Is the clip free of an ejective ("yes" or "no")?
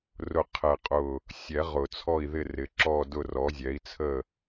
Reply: no